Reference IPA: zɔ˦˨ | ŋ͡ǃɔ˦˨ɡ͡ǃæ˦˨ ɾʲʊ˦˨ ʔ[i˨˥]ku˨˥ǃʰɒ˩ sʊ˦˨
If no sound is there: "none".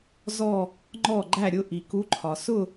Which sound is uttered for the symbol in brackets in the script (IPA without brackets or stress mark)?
i˩